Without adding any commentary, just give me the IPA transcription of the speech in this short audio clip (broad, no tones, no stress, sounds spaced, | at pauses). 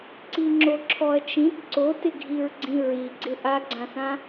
ǀ i ŋ͡ǁ o ǁʰ ɔ ɐ̯ t͡ʃ ĩ t ǀ o t ɪ ɡʱ i ɹ ɡ͡ǀ ĩ ɹ i ɡ͡ǀ ɪ ʔ a ɡ͡ǀ ã s ã